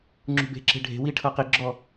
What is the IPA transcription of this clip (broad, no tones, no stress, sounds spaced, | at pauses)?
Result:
ŋ͡ǁ ṳ b e̤ ǁ e̤ ɖʱ e̤ w i ʈʰ ɤ q i ɡ͡ǁ ɔ